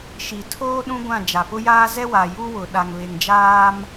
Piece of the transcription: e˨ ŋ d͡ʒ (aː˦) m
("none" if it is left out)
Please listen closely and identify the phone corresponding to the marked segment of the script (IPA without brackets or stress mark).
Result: aː˦